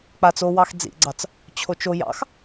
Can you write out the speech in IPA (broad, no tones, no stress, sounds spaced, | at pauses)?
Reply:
k͡p a t͡s o w ɑ x d͡z ḭ ɡ͡ǀ ɑ t͡s | t͡ɕʰ o t͡ʃ o j ɑ̰ x